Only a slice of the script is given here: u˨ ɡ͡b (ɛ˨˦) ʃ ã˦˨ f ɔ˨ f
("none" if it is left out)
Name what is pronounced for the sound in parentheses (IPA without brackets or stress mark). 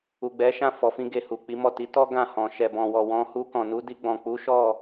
ɛ˨˦